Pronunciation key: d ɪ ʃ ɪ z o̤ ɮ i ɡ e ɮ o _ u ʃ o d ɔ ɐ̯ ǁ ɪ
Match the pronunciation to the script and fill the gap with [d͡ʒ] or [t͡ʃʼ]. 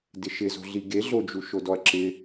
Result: d͡ʒ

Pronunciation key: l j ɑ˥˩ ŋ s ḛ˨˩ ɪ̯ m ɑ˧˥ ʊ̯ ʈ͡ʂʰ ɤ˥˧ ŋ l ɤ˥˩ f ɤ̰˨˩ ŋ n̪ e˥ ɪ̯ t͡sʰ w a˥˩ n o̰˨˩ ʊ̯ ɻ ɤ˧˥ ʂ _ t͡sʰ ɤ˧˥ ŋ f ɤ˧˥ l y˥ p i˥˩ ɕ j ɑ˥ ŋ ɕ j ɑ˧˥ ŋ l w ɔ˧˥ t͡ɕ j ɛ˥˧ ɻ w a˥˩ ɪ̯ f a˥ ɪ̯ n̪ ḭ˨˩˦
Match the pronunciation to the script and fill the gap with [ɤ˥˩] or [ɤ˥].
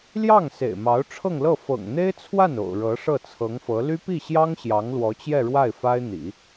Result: ɤ˥˩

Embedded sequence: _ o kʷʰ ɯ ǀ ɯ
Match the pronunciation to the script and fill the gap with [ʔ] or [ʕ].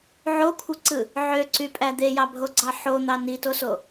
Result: ʕ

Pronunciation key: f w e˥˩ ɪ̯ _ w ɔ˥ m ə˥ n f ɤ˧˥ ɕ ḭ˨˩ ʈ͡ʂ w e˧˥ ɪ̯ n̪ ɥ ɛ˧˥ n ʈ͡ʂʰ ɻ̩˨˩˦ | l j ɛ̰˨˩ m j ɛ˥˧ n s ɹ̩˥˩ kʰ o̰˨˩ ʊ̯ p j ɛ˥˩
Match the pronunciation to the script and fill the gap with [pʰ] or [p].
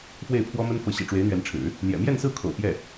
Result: pʰ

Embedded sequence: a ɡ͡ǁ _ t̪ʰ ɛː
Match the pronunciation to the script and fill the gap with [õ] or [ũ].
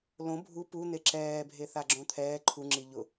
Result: õ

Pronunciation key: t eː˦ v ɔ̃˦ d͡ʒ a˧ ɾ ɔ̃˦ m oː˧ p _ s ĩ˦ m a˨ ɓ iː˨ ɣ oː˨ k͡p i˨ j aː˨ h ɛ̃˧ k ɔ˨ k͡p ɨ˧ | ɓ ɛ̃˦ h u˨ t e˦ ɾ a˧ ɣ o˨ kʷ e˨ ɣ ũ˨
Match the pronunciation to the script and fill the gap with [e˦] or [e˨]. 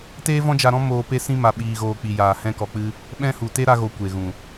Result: e˦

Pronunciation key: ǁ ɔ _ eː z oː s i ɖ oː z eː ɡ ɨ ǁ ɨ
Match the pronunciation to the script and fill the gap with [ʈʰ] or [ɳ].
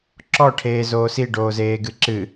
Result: ʈʰ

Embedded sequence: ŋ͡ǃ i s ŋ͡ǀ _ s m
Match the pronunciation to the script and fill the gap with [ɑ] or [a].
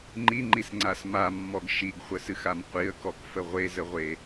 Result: a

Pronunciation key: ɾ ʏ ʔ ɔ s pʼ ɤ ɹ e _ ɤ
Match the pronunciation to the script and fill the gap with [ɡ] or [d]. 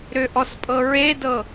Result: d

